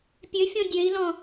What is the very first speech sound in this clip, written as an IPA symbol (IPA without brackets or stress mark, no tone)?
pʲ